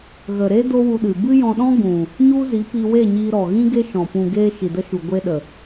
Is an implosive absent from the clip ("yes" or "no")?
no